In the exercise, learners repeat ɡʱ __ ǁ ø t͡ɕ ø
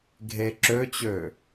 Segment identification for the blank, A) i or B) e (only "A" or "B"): B